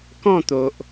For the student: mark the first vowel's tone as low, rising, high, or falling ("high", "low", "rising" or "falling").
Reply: falling